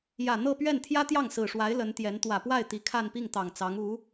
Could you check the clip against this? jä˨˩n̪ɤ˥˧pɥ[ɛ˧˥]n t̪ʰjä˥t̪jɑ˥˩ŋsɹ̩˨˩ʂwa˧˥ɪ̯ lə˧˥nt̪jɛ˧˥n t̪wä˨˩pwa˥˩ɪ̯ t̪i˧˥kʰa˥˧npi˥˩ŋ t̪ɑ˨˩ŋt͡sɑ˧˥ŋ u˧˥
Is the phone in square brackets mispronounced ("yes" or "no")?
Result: yes